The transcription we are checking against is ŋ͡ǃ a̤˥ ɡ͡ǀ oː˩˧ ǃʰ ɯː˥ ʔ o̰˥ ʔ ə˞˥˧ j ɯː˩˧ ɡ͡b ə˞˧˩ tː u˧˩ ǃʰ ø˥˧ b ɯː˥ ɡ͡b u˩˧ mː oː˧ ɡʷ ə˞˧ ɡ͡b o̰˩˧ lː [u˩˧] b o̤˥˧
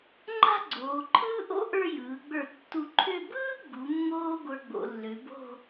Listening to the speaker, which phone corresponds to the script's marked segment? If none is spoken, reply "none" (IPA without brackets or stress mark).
ø˩˧